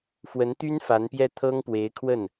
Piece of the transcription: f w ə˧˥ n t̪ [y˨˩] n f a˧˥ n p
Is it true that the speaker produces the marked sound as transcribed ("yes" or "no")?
no